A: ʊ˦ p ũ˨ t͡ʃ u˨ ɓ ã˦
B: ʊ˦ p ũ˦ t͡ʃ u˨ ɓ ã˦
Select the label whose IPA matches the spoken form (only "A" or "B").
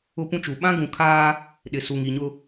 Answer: B